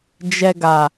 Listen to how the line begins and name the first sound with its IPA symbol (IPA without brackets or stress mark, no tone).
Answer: d͡ʒ